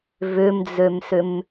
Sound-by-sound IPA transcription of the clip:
v ʏ m d͡z ø m s ʏ m

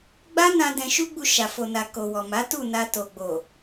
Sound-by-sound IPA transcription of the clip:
ɡ͡b a˦ n ã˧ d ɛ̃˧ ʃ u˦ ɡ͡b u˧ ʃ a˨ f o˨ n a˨ k o˨ w ɔ˨ m a˨˦ t u˦˨ n a˧ t o˨ ɡ͡b o˨

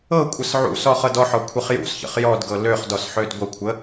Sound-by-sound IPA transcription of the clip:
ɤ kʷʼ ə s ʕ ṵ s ɔ χ ɤ d ɔ ħ ɔ kʷʰ ə χ j ṵ s ç ə̰ χ j ɔ d ɡ ɤ l ø χ d ɔ s ħ ø d ɡʷ ə kʷʰ ə

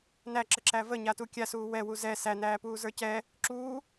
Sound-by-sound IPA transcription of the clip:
n æ ǁ ə ǁ æ v ə ɲ a t u kʲ a s uː w ɛ w u z ɛ s æ n æː p uː z ə˞ c ɛ | ǁ uː

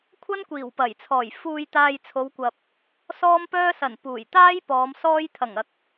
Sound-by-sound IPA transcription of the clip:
kʷʰ ɐ˥ n kʷ iː˨˩ w p ɐ˨˩ j t͡sʰ ɔː˨˩ j f uː˧ j t̪ aː˧ j t͡sʰ o˨˧ w kʷ ɐ˨ p̚ | s ɔː˥ m p œː˥ s ɐ˨˩ n p uː˨˩ j t̪ aː˥ j p ɔː˨˧ m s ɔː˥ j t̪ʰ ɐ˨˩ ŋ ɐ˨ k̚

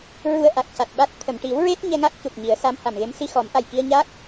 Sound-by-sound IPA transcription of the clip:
ɹ u˧ ə̯ ʔ a˨˩ k̚ c a˨˩ t̚ ɓ a˦˥ t̚ t̪ʰ ə˨˩˨ m ʈ i˨˩˦ w ɹ e˦˥ t̚ ɲ ɛ˧ ŋ a˦˥ k̚ c u˨˩ p̚ ɲ i˨˩˦ ə̯ s a˧˥ m h a˨˩ m ɣ e˧˥ m s i˧ x ɔ˨˩˦ m ʔ a˨˩ j k i˧ ə̯ ɲ a˦˥ k̚

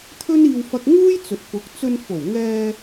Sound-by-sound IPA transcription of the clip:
t̪ʰ ɵ˥ n iː˧ w f ɐ˧ k̚ ŋ uː˥ j t͡s ɵ˨ t̚ p ʊ˨˥ k̚ t͡s ɵ˧ n f o˨˩ w ŋ ɛː˧

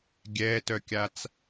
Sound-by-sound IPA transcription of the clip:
ɡʲ ɛ t œ kʲ a t͡s

